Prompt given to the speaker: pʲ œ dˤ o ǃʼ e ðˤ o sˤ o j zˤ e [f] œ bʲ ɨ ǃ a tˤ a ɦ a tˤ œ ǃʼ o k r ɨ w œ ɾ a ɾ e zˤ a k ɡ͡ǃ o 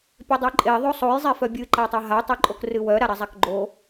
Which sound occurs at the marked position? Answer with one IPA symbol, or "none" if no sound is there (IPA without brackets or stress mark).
f